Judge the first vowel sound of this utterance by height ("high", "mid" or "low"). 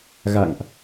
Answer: low